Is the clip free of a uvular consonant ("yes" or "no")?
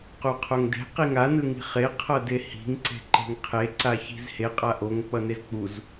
no